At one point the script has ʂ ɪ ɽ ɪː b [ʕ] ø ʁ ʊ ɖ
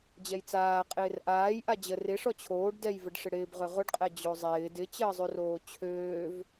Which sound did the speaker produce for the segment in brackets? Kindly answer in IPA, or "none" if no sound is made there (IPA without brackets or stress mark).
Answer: ʁ